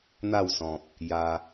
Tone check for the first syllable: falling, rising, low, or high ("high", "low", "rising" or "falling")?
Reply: falling